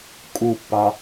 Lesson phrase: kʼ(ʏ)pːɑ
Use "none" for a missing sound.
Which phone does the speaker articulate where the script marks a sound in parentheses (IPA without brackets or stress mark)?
u